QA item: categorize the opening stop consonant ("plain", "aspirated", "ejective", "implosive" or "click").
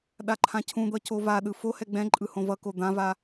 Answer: implosive